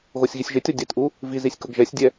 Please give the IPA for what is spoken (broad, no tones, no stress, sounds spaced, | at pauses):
ɣ o sʲ ɣ i sʲ ʒ ɪ tʲ ɔ dʲ ɛ t ʔ u | v i z i sʲ k ʊ ɡ ʒ ɛ sʲ dʲ ɛ